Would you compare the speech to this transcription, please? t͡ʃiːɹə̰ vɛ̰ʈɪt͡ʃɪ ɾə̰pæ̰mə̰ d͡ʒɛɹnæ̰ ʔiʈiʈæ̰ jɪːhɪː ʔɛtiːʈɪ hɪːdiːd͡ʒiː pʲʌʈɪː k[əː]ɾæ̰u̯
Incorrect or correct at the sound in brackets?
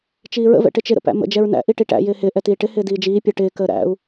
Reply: correct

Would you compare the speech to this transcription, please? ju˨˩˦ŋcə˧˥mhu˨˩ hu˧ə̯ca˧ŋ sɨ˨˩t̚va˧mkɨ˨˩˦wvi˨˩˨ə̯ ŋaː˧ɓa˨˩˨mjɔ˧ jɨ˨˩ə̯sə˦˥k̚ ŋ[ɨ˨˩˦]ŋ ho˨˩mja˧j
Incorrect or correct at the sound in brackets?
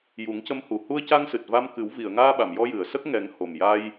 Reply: incorrect: ɛ˨˩˦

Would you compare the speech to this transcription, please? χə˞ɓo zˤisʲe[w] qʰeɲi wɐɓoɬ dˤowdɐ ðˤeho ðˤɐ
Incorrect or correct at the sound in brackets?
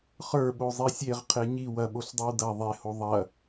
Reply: incorrect: ʁ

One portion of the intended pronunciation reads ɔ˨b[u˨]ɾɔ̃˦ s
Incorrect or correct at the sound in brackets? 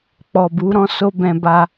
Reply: incorrect: u˨˦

